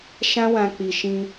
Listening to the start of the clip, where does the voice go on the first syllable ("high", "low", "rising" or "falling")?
high